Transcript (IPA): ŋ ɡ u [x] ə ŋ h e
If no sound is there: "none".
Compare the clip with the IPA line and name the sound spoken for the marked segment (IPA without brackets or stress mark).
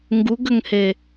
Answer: ɡ